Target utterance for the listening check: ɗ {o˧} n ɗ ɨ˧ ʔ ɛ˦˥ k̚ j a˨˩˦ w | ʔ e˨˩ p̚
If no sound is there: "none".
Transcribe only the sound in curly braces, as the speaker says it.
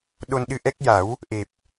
o˧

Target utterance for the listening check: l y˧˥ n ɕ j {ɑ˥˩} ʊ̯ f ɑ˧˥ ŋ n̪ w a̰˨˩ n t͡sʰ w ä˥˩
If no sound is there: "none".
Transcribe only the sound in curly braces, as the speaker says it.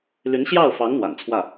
ɑ˥˩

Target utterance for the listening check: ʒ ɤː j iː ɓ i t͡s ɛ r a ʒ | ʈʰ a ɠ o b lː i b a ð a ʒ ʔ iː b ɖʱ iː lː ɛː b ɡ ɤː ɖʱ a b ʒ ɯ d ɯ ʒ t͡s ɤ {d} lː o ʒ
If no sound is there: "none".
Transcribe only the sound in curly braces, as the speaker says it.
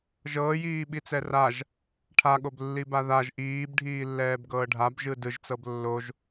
b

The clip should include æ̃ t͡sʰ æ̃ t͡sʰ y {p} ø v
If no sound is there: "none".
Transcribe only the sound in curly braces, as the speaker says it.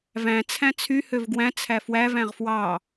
h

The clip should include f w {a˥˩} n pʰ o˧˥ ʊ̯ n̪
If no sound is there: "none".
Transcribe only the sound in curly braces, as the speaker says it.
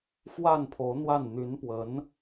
a˥˩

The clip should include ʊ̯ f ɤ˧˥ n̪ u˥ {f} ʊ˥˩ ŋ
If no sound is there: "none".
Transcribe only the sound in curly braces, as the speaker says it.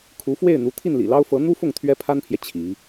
f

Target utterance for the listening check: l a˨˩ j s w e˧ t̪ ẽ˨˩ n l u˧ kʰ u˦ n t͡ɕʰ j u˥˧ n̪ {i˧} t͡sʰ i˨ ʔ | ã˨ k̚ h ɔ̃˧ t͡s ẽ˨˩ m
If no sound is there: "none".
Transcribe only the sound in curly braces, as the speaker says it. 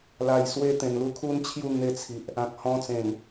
e˧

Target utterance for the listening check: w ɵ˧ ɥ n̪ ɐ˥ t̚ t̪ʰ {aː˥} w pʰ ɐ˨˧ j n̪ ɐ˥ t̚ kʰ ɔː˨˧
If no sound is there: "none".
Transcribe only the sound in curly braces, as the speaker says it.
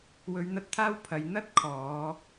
aː˥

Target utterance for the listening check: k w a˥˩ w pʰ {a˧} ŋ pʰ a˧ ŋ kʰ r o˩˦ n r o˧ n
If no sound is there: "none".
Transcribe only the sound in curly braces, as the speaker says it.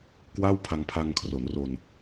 a˧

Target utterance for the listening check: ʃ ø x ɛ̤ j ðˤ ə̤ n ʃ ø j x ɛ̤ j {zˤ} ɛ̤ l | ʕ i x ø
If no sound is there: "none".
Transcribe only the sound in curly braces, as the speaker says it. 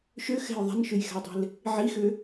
dˤ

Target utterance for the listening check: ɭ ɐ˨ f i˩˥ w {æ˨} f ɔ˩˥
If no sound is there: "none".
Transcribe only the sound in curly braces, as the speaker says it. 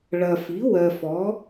ɜ˨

